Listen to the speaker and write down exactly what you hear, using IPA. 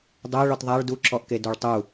dˤ ɛ ɭ ɔ t ðˤ a ɭ d u ǁ ɔ ʔ k e d o ɭ tˤ u

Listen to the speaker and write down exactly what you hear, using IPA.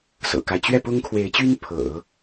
s ɤ̰˨˩ k a˦ ɪ̯ t͡ɕ ɥ ɛ˥˩ p ʊ˥ ŋ kʰ w e˧˥ ɪ̯ t͡ɕ y˥ n pʰ ɤ̰˨˩˦

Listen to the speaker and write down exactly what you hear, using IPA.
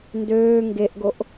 n d øː ŋ ɡ e ʔ ɡ o ʔ

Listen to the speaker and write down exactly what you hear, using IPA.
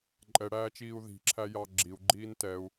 ǃʼ ɛ ɽ æː t͡ʃ iː u̯ ð i̤ ǁʰ æ j ɑ ɡ͡ǁ i u̯ ɡ͡ǃ iː n t ɛ u̯

